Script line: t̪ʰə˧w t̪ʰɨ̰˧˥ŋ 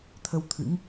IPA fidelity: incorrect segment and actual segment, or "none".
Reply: none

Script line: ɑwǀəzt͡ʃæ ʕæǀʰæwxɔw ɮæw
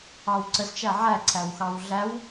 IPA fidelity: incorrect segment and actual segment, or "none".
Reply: ɔ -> ɑ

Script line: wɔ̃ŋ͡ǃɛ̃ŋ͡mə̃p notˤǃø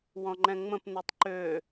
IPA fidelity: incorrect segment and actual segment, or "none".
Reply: none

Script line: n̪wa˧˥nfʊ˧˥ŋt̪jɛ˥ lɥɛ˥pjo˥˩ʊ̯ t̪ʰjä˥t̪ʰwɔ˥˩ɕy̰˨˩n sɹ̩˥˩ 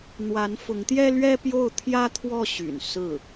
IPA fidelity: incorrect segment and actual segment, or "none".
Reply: none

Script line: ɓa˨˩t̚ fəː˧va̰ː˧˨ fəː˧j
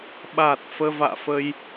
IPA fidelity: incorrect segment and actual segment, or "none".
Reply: none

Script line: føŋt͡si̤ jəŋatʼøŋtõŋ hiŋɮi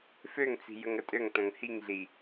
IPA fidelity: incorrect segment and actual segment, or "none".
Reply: a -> ə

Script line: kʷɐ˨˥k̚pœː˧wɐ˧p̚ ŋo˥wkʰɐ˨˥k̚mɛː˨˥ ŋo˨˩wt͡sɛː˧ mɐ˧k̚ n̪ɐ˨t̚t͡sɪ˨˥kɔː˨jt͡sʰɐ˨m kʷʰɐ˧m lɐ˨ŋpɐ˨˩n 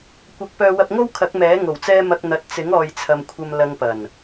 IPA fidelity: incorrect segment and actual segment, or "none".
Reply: k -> ŋ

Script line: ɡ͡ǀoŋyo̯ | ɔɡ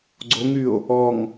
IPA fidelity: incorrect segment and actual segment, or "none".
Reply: ɡ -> ŋ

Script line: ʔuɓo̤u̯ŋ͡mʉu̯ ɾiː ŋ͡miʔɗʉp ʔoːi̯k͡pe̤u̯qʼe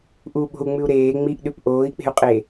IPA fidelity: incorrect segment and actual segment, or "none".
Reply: iː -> eː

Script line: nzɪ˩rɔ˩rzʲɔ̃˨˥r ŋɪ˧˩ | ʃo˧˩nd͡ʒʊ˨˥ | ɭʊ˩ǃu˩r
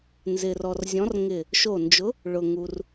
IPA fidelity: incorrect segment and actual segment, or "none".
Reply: ǃ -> ŋ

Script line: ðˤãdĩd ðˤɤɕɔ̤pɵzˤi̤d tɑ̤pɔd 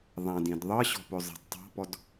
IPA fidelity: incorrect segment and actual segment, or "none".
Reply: t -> tˤ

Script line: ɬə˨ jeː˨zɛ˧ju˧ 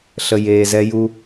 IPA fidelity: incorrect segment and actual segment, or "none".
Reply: none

